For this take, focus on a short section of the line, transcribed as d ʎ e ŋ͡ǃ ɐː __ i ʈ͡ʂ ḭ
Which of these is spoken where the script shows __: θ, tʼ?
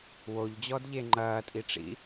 tʼ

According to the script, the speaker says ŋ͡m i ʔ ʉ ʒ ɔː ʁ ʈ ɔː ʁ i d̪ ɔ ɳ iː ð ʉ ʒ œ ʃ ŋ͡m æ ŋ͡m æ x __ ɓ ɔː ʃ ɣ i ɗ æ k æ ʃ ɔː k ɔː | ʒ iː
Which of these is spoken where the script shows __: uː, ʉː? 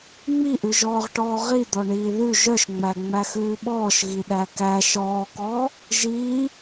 ʉː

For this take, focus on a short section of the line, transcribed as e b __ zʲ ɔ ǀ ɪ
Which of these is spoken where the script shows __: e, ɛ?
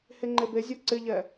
e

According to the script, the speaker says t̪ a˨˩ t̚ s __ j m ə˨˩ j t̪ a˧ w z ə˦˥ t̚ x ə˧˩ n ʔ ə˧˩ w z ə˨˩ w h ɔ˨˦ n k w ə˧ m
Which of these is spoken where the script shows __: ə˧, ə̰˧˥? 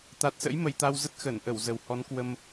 ə̰˧˥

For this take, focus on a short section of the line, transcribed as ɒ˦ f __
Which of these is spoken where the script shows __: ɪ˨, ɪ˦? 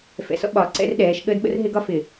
ɪ˨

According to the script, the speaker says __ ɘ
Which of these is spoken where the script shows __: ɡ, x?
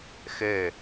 x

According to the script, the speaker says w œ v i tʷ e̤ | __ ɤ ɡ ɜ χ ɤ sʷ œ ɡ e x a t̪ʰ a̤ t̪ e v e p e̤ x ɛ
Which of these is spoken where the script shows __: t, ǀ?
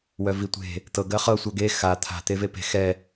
t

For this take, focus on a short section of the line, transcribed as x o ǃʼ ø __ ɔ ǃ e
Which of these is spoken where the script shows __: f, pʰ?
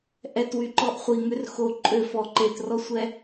f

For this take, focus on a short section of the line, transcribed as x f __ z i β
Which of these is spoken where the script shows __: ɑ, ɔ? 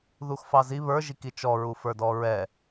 ɑ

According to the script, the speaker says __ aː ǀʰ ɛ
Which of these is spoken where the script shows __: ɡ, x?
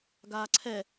ɡ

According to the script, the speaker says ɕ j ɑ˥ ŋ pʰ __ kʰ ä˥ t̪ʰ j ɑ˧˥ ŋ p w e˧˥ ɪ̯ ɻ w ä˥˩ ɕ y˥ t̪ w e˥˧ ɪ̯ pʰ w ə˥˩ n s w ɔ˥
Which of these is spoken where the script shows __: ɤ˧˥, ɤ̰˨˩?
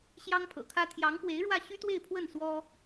ɤ̰˨˩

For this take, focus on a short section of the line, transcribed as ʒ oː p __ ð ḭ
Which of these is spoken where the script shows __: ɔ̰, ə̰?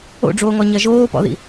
ɔ̰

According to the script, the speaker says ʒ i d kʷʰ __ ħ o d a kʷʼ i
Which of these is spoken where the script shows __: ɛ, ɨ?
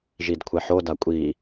ɛ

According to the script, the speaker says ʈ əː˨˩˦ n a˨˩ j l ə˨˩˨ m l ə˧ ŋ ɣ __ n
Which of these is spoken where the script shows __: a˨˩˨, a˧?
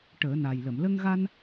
a˧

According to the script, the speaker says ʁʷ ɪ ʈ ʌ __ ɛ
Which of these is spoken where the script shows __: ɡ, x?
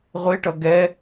ɡ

